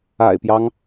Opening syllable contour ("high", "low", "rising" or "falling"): low